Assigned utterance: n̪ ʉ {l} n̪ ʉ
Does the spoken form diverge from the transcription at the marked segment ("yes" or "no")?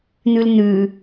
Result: no